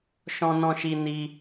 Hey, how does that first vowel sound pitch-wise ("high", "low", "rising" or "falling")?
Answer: high